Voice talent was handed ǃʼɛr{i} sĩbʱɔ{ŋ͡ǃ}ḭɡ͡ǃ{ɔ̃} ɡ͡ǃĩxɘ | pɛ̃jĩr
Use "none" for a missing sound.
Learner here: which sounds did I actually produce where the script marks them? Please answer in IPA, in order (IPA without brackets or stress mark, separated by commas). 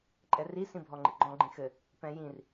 i, ŋ͡ǃ, ɔ̃